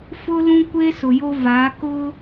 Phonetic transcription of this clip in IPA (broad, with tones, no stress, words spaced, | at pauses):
fʊ˦lũ˦kʷe˦ sʊ˨jo˦va˨˦ kʊ˦